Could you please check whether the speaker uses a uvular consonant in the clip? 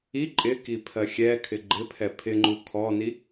no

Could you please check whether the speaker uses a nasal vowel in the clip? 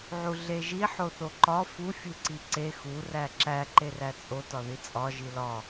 no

